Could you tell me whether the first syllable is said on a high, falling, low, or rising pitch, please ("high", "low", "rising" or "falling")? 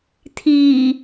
low